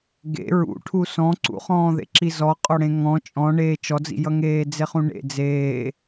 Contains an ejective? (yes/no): yes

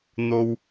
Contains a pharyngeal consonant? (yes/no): no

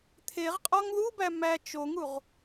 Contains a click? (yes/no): no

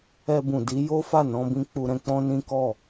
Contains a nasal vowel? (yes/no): yes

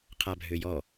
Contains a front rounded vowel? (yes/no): yes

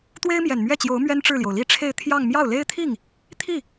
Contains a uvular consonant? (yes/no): no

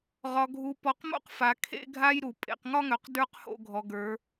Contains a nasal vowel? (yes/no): no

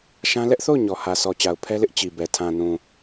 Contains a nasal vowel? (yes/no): yes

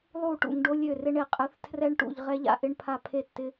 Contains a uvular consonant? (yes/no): yes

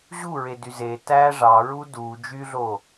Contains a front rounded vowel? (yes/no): yes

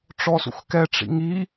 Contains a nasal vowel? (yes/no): no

